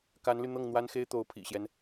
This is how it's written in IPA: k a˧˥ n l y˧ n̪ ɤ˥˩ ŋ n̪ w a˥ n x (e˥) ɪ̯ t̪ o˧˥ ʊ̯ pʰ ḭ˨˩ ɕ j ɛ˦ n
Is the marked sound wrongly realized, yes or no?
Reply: no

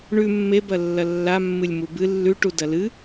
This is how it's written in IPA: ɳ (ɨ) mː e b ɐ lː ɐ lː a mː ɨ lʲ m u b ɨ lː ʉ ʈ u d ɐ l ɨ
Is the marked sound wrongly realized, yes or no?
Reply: yes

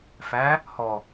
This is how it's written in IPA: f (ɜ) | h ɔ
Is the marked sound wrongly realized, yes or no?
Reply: yes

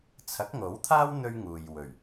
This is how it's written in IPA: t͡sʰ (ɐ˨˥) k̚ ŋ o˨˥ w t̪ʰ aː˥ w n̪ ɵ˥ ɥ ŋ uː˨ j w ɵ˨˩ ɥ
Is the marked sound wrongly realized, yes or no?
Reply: no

